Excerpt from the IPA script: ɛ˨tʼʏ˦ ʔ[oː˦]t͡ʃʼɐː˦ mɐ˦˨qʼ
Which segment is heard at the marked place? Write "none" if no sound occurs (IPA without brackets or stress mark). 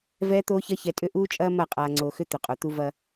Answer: uː˦